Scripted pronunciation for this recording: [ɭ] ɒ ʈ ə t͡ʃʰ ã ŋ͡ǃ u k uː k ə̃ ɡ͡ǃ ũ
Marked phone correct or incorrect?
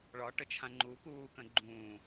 correct